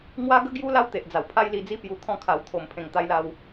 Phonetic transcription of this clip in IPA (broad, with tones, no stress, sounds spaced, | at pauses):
ŋ w a˦ ɡ ə˦ ɡ j u˦ l a˦ w t̪ e˨ ʔ d͡z a˨˩ w pʰ a˦ j l i˧ d͡z i˦ p j u˧ t̪ʰ ɔ̃˥˧ kʰ a˨˩ w t̪ʰ o˨˩ m pʰ ẽ˨˩ ŋ t̪ a˧ j l a˧ w